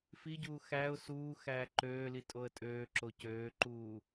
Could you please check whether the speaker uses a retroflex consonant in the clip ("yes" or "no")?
no